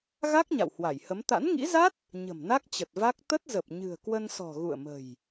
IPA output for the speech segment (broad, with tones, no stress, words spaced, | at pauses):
ɣa˦˥k̚ ɲa̰˧˨whwa˧˩jhə˨˦m t̪a̰˧˥nŋḭ˧˥za˦˥t̚ | ɲə̤˨˩mna˦˥k̚ t͡ɕə˨˩t̚va˦˥k̚ t̪ə˦˥t̚zə˨˩p̚ ɲɨ̤˨˩ə̯kwə˧nsɔ̤˨˩ ɣṵ˧˨ə̯mə̤˨˩j